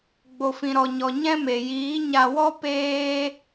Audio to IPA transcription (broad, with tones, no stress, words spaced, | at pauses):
ɡ͡bo˨fĩ˨ɾɔ˨ɲɔ˨ ɲɛ̃˦me˨ jiː˨˦ɲa˧wɔ˦ peː˦